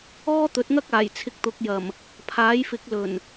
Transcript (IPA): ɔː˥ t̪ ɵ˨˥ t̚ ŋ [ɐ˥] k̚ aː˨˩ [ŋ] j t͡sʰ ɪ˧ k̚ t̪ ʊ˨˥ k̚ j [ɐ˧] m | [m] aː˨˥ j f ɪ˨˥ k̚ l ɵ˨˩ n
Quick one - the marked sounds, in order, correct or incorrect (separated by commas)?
correct, incorrect, incorrect, incorrect